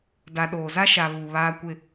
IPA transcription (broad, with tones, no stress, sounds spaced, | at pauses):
d a˨ ɗ oː˨ z a˦ ʃ a˨ β u˨ β aː˦ kʷ ɪ˦